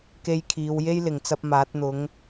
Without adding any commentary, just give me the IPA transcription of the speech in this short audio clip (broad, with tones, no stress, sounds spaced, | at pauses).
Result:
k e˧ j kʰ iː˨˧ w j e˥ j l ɪ˨˩ ŋ t͡s ɐ˧ p̚ m aː˨˥ t̚ n̪ ʊ˨˧ ŋ